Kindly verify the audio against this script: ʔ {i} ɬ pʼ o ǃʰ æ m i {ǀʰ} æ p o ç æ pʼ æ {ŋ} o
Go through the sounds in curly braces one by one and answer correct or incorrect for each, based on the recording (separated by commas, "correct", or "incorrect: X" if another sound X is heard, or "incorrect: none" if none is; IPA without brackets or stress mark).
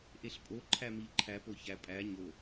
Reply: incorrect: e, incorrect: ǃʰ, incorrect: ɲ